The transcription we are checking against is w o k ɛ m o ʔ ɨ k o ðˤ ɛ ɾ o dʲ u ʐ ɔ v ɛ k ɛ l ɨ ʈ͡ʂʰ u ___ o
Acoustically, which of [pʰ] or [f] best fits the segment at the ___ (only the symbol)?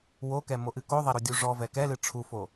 f